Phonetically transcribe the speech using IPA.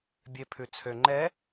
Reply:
bʲ e pʰ ʉ t͡sʰ ø ŋ͡ǃ ɛ

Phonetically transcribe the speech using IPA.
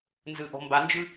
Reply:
n z ɯ ʔ ɔ̤ m b a n d͡ʒ ɯ

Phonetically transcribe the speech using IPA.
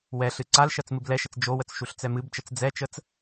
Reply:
w ɛ ɬ ɨ ǀ a l ʃ ɜ t͡s m ɨ b l ɛ ʃ ə t͡s d͡ʒ o w ə t͡s ʃ u ɬ t͡s ɛ m ɨ b t͡ʃ ə t͡s d͡z ɛ t͡ʃ ə t͡s

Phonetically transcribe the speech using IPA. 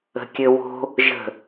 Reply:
ə̤ kʲ ɘ w o̤ | ʒ ə̤

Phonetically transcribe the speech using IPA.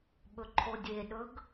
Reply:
ɓ ɵ ǃʰ o dʲ e ɗ ɵ ɡ

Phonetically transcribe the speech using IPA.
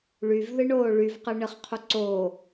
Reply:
ɭ y v ð ɨ ɳ oː ɭ y v q ɨ ɳ ɨ χ qʰ u ǀ oː

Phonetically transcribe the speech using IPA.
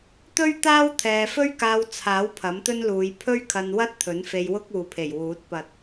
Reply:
t̪ ɵ˥ ɥ t̪ aː˥ w t̪ʰ ɛː˨ f ɵ˥ ɥ k aː˧ w t͡sʰ aː˨˥ w pʰ ɐ˨˥ m t̪ ɵ˥ n l uː˨˧ j pʰ ɵ˥ ɥ kʰ ɐ˧ n w ɐ˥ t̚ t̪ʰ ɵ˨˥ n f e˧ j w ʊ˥ k̚ uː˨ pʰ e˨˩ j w uː˨˥ t̚ p ɐ˧ t̚

